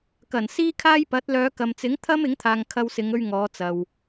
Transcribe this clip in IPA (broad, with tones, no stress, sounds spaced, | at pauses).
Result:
k ɐ˨˩ n s iː˥ kʰ aː˥ j p ɐ˨˥ t̚ l œː˨˧ k ɐ˨ m t͡s ɪ˨˥ ŋ t̪ʰ ɐ˥ m ɪ˨˥ ŋ t̪ʰ aː˨ ŋ kʰ ɐ˧ w s ɪ˨˧ ŋ ɵ˧ ɥ ŋ ɔː˨˧ t͡s ɐ˨ w